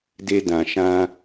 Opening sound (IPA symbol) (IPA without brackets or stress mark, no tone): d